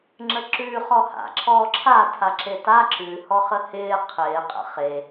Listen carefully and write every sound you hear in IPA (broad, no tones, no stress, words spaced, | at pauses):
ŋ͡ǁəǁʉː χɔha̰ ǁʰɔːǁʰa tʰaǁeta ǁʉ hɔχəhɪː qʰɪː qʼə̰χe